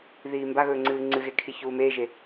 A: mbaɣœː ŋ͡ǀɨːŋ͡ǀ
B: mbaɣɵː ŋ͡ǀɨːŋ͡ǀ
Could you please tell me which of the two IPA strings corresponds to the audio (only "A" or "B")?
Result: B